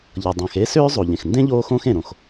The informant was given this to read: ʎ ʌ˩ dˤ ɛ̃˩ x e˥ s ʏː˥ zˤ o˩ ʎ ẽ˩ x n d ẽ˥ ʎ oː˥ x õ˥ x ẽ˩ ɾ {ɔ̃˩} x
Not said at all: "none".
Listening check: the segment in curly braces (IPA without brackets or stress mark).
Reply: õ˩